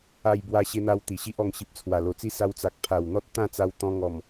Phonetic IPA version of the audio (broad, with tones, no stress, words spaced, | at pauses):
a˧jbwa˧ ɕe˧n̪a˧w t̪i˨˩ɕi˦ʔɔ˧ŋ ɕi˨p̚t͡sʰwa˨˩lo˨˩t͡si˦ sa˧wt͡sa˨k̚ pʰa˨˩wn̪ɔ˦t̚ t̪ã˥˧t͡sa˧wt̪ɔ̃˧ŋɔ˨˩m